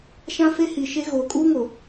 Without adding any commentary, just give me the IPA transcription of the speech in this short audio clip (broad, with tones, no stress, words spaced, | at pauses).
ʃã˦fe˦hi˨ʃe˦ ɣoː˨kʼuː˦ŋo˨